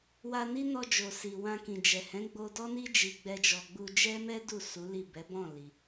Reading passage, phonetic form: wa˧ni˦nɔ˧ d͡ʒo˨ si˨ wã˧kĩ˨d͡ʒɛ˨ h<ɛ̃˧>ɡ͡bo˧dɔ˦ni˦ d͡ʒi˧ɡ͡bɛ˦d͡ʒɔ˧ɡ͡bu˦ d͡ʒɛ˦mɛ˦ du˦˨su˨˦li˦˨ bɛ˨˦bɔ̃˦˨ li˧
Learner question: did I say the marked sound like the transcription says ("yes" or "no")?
no